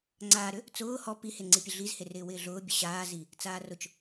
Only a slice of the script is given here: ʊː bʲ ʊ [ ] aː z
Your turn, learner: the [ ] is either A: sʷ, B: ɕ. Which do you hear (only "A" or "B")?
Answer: B